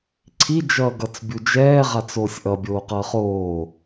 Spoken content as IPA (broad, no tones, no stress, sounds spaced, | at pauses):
ǀʰ i d͡ʒ ʌː ɡ ʌ t͡s bʲ u d͡ʒ ɛː ʁ a t͡s oː sʲ ʔ ʌ bʲ oː q ʌː χ oː